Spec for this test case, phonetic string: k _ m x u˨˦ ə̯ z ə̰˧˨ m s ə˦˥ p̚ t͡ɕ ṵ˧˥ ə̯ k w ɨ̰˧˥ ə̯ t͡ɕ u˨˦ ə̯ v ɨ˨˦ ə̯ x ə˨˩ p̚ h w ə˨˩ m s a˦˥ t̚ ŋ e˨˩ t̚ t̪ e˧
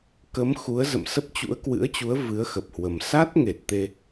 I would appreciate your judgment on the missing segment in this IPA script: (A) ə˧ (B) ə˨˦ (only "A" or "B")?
B